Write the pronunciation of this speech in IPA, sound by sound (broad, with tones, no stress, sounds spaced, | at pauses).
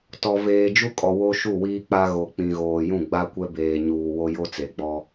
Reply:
t ɔ˨ v eː˨ d͡ʒ u˦ kʼ ɔ˨ w o˦ ʃ u˦˨ w iː˦ k͡p a˦ ɣ o˨ k͡p ĩ˨ ɣ oː˨ j ũ˦˨ ɡ͡b a˦ kʷ ɛ˦ b eː˨ ɲ uː˨ w o˦ j o˦ t͡s e˨ ɡ͡b ɔ˦